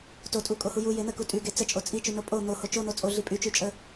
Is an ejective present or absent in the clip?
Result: present